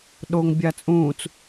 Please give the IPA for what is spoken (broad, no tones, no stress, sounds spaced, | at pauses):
ɗ o ŋ bʲ a t͡sʼ ũː t͡s